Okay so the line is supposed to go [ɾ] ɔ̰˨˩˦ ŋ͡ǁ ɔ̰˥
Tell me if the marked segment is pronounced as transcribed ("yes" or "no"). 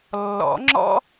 no